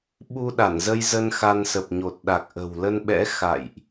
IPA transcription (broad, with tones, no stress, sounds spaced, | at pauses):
ɓ u˧ ɗ a˧˩ n z ə˧ j z ə˧ n x a˧ n s ə˨˩ p̚ ɲ o˨˩ t̚ ɗ a˨˩ k̚ ʔ ə̤˨˩ w l ə˧ n ɓ ɛ̰˧˥ x a̰˧˨ j ʔ